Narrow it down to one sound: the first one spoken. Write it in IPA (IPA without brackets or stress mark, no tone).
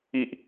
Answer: i